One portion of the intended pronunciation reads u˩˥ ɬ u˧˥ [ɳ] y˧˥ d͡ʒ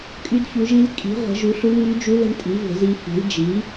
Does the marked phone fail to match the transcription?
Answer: yes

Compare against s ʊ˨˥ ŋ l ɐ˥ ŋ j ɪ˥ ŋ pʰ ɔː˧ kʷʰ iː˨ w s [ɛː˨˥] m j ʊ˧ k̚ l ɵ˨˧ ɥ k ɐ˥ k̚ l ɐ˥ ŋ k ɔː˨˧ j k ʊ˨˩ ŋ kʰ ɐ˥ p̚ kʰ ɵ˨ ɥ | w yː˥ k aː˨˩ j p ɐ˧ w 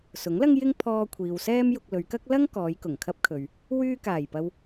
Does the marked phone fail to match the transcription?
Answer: yes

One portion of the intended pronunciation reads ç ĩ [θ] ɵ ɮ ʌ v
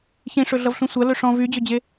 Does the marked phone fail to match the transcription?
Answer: yes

